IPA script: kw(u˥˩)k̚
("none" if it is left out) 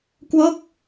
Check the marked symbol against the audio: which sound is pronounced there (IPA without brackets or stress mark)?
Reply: o˥˩